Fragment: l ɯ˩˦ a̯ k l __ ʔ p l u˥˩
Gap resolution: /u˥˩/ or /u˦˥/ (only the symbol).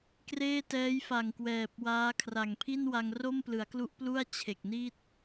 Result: u˦˥